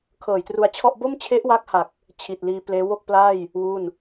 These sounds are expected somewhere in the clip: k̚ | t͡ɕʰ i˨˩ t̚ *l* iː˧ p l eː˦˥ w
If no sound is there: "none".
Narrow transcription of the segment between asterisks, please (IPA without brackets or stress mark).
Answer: l